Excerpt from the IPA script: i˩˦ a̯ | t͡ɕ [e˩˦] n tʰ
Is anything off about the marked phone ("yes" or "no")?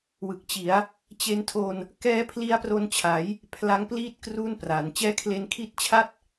yes